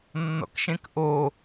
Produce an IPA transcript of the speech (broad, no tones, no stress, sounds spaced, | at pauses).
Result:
nː ɔ̰ k ʃ ẽ k ʔ o